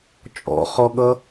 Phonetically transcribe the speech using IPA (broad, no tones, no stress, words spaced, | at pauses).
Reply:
t͡ʃʼɔ̰χɔɠʌ